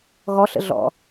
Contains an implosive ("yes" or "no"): no